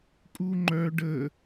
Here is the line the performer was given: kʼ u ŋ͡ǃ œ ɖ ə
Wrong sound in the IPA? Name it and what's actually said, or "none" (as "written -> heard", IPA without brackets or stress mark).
none